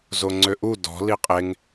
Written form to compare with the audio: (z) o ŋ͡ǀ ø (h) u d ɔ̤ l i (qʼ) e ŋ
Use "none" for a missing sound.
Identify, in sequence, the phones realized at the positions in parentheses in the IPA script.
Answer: z, ʔ, qʼ

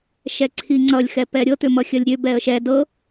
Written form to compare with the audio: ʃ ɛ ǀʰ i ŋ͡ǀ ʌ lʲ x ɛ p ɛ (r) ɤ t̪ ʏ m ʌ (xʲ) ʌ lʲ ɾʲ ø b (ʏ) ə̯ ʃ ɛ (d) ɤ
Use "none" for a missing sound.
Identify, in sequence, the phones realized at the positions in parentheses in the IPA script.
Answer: ɾʲ, xʲ, ɛ, d

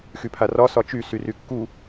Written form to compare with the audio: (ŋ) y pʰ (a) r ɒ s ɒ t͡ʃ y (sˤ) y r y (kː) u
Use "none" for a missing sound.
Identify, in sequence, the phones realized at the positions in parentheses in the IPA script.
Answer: x, a, s, kː

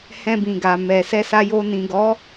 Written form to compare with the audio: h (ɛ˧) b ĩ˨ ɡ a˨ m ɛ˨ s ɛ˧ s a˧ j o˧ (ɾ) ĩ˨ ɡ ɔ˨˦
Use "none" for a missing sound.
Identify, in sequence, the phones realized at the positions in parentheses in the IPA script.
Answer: ɛ̃˧, n

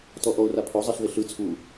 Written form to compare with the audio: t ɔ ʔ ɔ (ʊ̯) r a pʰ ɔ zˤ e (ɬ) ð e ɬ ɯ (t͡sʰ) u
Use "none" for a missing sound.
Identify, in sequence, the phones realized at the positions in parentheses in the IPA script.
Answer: ʊ̯, ɬ, t͡sʰ

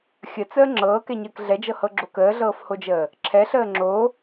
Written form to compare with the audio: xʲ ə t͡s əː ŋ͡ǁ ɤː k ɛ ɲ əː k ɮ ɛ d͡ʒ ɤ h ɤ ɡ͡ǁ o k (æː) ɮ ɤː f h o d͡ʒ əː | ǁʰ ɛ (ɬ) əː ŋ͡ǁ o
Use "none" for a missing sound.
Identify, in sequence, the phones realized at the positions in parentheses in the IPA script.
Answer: əː, ɬ

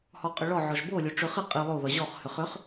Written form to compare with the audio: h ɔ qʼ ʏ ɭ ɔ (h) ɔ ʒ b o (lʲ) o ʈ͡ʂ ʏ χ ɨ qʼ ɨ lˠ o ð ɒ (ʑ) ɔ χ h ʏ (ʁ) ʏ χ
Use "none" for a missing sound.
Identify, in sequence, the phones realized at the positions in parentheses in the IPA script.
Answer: ʕ, lʲ, ʑ, χ

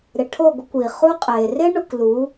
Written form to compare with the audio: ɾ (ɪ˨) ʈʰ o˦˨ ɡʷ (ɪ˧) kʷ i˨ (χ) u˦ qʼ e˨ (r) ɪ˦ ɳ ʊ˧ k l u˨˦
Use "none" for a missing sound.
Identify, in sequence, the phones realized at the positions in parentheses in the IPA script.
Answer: ɪ˨, ɪ˧, χ, r

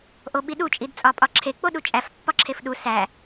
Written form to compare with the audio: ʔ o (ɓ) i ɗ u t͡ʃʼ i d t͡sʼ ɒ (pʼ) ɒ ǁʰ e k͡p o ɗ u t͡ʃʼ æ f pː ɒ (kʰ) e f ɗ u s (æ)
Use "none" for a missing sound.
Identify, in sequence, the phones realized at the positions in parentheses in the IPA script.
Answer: ɓ, pʼ, ǁʰ, æ

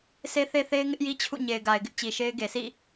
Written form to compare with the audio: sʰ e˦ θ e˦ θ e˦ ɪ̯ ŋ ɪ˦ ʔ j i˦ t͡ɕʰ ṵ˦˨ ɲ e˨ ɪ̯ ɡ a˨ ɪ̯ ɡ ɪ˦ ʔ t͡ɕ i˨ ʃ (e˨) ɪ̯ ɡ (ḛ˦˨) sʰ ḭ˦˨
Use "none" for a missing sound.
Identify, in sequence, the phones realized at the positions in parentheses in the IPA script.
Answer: e˦, e˨

